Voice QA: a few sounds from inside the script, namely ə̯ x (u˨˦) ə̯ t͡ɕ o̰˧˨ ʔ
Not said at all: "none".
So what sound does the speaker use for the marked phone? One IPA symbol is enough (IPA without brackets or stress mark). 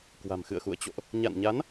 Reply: ṵ˧˨